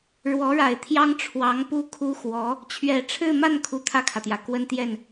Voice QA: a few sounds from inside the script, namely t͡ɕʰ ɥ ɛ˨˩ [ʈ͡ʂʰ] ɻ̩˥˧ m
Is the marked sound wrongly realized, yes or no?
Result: no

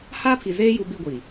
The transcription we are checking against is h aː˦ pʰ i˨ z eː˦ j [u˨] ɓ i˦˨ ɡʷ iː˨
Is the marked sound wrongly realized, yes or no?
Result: no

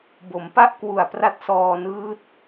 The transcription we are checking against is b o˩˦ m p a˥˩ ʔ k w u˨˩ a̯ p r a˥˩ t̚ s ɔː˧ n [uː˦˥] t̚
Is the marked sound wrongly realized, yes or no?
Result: yes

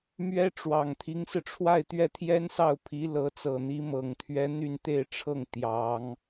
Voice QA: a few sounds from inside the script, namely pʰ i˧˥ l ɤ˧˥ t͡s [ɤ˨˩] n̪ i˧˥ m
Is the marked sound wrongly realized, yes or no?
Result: no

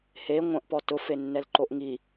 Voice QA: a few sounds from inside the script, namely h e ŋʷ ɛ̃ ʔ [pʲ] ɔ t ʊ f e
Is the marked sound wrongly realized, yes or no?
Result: yes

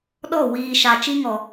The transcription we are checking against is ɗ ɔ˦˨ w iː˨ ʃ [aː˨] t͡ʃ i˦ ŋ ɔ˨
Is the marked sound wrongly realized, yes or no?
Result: yes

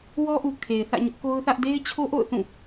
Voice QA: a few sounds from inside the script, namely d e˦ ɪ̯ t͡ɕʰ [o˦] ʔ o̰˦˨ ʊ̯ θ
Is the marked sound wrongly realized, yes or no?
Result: no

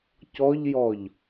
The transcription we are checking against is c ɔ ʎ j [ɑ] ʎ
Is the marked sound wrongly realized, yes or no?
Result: yes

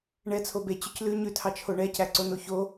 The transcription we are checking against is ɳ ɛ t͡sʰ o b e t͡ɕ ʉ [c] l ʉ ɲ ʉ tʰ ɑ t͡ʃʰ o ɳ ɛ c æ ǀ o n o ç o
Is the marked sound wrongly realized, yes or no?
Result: no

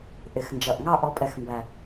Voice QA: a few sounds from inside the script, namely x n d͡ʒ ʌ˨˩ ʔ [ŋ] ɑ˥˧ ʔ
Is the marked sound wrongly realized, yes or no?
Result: no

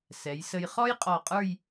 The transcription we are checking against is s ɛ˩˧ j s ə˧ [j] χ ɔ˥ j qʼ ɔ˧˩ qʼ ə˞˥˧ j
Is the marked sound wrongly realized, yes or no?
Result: no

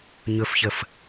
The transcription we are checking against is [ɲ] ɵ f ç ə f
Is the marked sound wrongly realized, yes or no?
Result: no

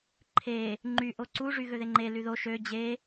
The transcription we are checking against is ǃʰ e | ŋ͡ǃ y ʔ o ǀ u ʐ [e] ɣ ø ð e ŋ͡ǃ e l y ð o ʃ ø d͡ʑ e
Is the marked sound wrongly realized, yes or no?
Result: yes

